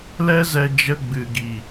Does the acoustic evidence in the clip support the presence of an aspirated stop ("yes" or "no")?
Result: no